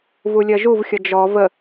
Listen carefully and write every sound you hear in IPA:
v u lʲ ɜ ʒ u v xʲ ʌ d͡ʒ ɔ v ə

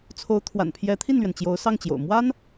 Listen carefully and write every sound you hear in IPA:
t͡sʰ o˧˥ ʊ̯ t̪ʰ w a̰˨˩ n pʰ j ɛ˧˥ t̪ʰ i˥˩ n l ɥ ɛ˩ n t͡ɕ j o˧˥ ʊ̯ s ɑ˥˩ ŋ t͡ɕ j o̰˨˩ ʊ̯ m w a˥ n

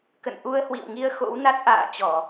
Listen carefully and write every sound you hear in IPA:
k ə̰˧˨ n ʔ u˧ ə̯ h w ḭ˧˨ w ŋ i˧ ə̯ x o̰˧˥ w n a˦˥ t̚ ʔ a̰ː˧˨ t͡ɕ ɔ˧˩˨

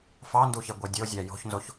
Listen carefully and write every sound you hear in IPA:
f ɑ n d u ç e ɡʷ e dʲ o zʲ æ j o̤ ç n z o ç

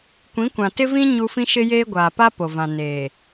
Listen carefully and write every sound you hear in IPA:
kʷ ĩ˨˦ kʷ ã˨ t ɪ˦ v ĩ˦ ɲ u˦ f ĩ˦ ʃ ɪ˦ j eː˦ ɡʷ aː˨ p a˦ p o˨ v ã˨ n eː˨

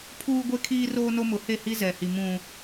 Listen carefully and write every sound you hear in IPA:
pʰ uː˦ ɡʷ e˦ kʰ iː˦ r oː˦ n o˦ m ʊ˨˦ h e˦˨ h i˦ z ɛ˨ h i˨ m ũ˨

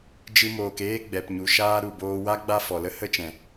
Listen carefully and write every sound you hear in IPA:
d͡ʒ ɨ˧ m oː˨ k eː˦ ɡ͡b ɛ˨ p ɲ u˨ ʃ aː˦ ɾ u˨ b oː˧ w a˦ ɡ͡b a˦ f ɔ˨ l ə˦ h ə˦ t͡ʃ ɛ̃˨

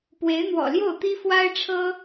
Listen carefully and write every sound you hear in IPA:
p w e˧˥ ɪ̯ n̪ w ɔ̰˨˩ l j o˥˩ ʊ̯ t̪ i˥ f w a˥ ɪ̯ ʈ͡ʂʰ ɤ˥

